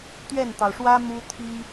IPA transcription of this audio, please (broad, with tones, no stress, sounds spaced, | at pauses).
t̪ ɥ ɛ˥˩ n t̪ ɑ˩ ʊ̯ ʂ w ä˥ m u˥ t̪ʰ i˥